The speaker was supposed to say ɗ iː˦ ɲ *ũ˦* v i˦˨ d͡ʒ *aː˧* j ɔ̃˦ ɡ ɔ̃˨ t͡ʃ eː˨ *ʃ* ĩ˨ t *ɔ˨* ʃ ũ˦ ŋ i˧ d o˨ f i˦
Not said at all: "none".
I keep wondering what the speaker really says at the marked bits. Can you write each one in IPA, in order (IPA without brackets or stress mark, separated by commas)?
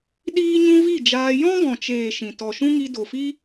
ũ˦, aː˧, ʃ, ɔ˨